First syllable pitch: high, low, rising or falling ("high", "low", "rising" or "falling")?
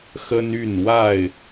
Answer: high